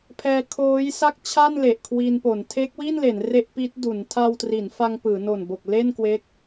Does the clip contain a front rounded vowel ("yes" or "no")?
no